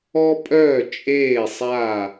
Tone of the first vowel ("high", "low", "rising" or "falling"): high